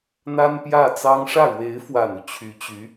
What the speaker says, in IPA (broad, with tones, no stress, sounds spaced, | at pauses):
n̪ a˥ n p j ä˥˩ t͡s ɑ˥ ŋ ʂ ä˥˩ ɻ w e˧˥ ɪ̯ f w a˨˩ n u˦ t͡ɕʰ y˧˥ t͡ɕ y˧˥